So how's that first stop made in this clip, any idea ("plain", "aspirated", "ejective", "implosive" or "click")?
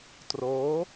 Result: plain